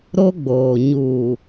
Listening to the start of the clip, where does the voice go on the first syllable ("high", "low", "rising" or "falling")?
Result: high